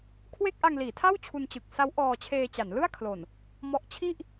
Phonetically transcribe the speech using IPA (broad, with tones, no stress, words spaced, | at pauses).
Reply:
kʰwe˥˩k̚ʔa˧ŋliː˩˦tʰa˥˩w t͡ɕʰu˧nt͡ɕɯ˨˩k̚ sa˦˥w ʔɔː˧t͡ɕʰeː˧t͡ɕa˩˦n lɯ˥˩a̯kʰlo˨˩n | mɔ˦˥ʔ t͡ɕʰi˥˩ʔ